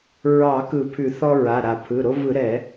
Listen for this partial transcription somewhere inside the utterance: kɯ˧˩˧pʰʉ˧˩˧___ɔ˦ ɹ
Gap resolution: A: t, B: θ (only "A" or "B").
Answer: B